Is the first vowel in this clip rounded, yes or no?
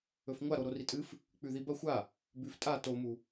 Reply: yes